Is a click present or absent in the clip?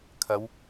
absent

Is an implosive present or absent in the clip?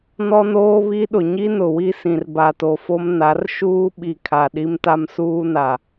present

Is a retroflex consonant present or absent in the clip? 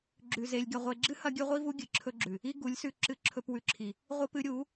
absent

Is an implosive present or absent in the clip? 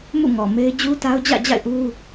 absent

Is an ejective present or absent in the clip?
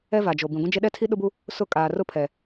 present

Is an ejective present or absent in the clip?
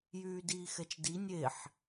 absent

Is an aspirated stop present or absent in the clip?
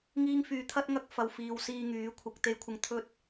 present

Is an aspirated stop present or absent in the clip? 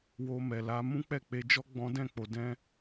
absent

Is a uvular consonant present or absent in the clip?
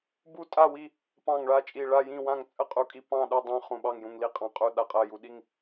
present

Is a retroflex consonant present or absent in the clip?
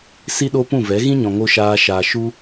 absent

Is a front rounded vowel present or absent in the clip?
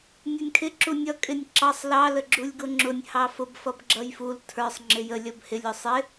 absent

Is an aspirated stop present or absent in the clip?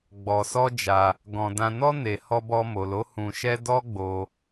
absent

